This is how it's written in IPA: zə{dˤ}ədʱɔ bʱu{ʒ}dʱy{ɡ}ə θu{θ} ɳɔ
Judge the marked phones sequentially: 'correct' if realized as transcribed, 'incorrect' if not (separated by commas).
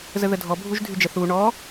incorrect, correct, incorrect, incorrect